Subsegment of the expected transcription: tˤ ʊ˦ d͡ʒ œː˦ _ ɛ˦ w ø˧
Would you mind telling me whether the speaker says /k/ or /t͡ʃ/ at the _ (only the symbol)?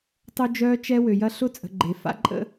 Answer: t͡ʃ